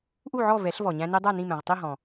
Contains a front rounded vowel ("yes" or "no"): no